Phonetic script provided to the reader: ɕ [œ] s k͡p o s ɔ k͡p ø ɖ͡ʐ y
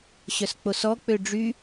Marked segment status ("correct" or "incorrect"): correct